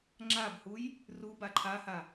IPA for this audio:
ŋ͡ǁ a b h u j | r u b a ǃʰ a h a

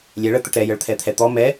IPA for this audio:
lʲ ɛ ɭ ə t̪ ə ʈ ɾ ɛ j ə ɭ t̪ʰ ɛ t̪ʰ ɛ t̪ ɔ m ɛ

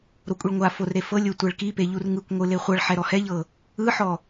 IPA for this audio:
ɾ o kʷʼ i ɭ ŋʷ a f o r ɾ e f ɤ lʲ o tʷ ɛ ɭ k i p e ʎ u r ŋ ɯ kʷ ŋʷ ɯ l e χʷ ɤ ɭ ħ ɛ ɾ ɔ h ɛ ʎ ɤ | ɯ ħ ɔ

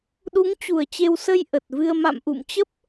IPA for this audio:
ɗ u˨˦ ŋ t͡ɕ u˨˩ ə̯ t͡ɕ e˧ w s ə˧ j ʔ ə˨˩ t̚ v ɨ˧ ə̯ m a̰˧˨ m ʔ ṵ˧˨ m t͡ɕ ə˦˥ p̚

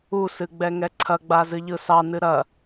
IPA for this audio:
u s ɨ ɡ͡b ɛ ŋ ɛ ǀʰ ɐ ɡ͡b a z ɨ ʎ ɯ s ɑ n ɨ ɾ ɐ

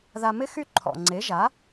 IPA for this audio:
ð a˧ m ɪ˦ x y˦ ǃʰ ɔ̰˨ ŋ͡ǀ e˨˦ ʒ a˨˦

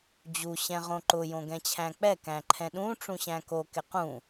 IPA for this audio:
d͡ʑ u ɕ ɛ̃ ʁ õ ǃ ʊ j õ ɡ ɛ̃ t͡ɕʰ æ̃ k͡p ɛ k æ̃ ǃʰ ɛ̃ ɗ ũ ʈ͡ʂ ũ ɕ æ̃ k o k ɪ q ũ

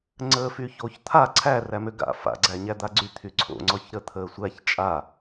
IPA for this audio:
ŋ͡ǀ əː f y ç o ç t̪ʰ a ǀʰ æ r æ m ø ɡ a̰ f a̰ ɡ͡ǀ æ ɲ æ d̪ a ɡ͡ǀ y t̪ʰ y ǀʰ o̰ ŋ͡ǀ ɔ ç ɾ ə t̪ʰ əː sʷ æ ç t͡ʃʼ a

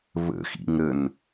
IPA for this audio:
β ə̰ x ḭ ŋ ɾ ə n

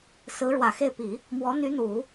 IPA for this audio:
s ɹ̩˧˥ ɻ w ä˨˩ x e˥˩ ɪ̯ p i˨˩˦ | m w ɔ˧˥ n̪ y˧˥ n̪ u˨˩˦

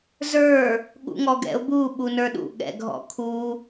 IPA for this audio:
z ə˞ | ɠ ṵ ŋ ɔ ɡ ɛ̰ ʊ̯ b u ɓ u n ə˞ ɗ ṵ ɠ ɛ̰ ɡʱ ɔ̰ kʰ u

